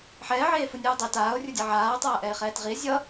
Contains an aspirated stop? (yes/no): no